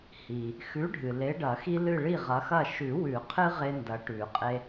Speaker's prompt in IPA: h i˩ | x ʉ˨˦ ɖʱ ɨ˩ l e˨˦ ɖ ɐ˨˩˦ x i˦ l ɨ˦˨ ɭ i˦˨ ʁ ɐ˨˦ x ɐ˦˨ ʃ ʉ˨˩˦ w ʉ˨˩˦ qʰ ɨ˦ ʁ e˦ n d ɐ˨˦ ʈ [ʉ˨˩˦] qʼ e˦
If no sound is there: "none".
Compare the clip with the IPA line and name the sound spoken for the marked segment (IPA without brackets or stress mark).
ʉ˨˩˦